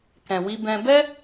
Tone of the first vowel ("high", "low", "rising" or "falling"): low